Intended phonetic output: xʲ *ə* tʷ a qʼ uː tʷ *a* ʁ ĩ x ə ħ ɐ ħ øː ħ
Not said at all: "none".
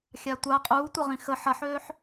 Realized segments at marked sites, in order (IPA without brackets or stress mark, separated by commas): a, ɐ